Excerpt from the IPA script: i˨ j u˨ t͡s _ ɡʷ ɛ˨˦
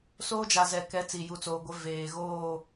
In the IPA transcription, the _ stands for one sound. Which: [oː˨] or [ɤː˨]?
oː˨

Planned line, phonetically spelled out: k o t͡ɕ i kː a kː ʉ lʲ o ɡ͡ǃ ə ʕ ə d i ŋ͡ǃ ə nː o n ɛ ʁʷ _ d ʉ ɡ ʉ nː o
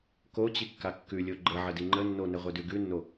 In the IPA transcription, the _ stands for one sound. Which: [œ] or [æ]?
œ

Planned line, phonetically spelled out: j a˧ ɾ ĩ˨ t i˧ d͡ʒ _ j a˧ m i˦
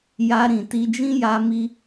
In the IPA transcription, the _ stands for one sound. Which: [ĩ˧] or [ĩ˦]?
ĩ˦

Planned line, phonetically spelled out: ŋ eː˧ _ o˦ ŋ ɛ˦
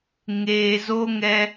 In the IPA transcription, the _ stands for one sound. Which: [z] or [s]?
z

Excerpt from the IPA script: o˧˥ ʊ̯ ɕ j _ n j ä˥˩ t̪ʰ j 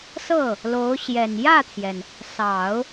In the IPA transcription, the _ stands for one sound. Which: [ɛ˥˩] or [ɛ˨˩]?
ɛ˨˩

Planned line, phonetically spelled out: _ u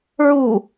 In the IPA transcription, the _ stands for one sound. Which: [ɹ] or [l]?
ɹ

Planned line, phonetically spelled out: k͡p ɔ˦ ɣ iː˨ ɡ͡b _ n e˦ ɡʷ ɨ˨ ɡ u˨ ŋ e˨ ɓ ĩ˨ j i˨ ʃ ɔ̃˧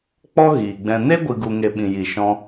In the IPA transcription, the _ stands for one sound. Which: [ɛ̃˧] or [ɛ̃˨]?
ɛ̃˧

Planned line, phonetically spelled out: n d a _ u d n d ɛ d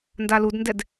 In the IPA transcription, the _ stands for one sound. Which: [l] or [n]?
l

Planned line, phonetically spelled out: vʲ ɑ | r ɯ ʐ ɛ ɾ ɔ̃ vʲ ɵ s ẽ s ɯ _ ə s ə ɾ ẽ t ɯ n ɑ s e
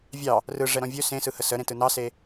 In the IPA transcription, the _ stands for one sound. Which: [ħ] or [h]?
h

